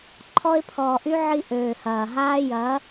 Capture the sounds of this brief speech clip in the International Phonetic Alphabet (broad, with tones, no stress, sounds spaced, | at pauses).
ǃʰ ɔ˧ ɪ̯ pʰ ɔː˨ ʔ y˧ ʕ i˧ ʔ øː˨ h ɐː˨ ɦ aː˧ j ɐ˨˦